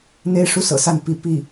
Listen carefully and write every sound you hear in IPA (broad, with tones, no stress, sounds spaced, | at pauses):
n̪ e˥ ɪ̯ ʂ u˥˩ s ɤ̰˨˩ s a˥˩ n p i˧˥ p i˥˩